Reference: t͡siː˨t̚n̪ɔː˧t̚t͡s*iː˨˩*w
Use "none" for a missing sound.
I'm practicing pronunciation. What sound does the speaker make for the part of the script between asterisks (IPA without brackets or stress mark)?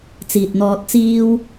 iː˥